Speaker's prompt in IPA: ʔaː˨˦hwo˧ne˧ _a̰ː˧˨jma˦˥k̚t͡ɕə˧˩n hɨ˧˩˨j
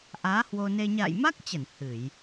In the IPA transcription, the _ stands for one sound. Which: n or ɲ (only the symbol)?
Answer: ɲ